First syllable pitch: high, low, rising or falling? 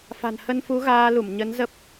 low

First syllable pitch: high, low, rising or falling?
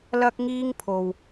high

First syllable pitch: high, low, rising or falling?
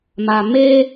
low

